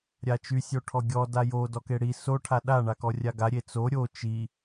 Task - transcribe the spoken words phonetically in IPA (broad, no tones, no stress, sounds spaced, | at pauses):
ɾʲ a t͡ʃ y sʲ o ʈʰ ɔ ɡʲ ɔ d a j o d ɔ k e ɽ i s o ʈʰ a ɗ a ɳ a k ɔ rʲ a ɡ a ɾʲ e t͡s o ɾʲ o t͡ʃ i